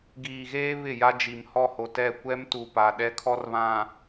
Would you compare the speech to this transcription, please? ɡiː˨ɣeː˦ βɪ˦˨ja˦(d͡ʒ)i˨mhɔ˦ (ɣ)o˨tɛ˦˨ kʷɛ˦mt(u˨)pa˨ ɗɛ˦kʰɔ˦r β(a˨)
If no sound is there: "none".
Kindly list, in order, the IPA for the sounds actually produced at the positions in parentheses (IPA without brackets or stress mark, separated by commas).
d͡ʒ, h, u˨, ã˨